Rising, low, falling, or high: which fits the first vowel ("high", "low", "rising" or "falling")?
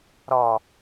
low